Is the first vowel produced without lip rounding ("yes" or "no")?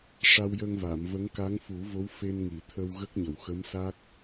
yes